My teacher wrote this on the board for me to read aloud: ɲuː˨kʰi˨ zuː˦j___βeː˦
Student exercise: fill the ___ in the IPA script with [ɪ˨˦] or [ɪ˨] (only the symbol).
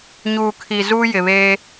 ɪ˨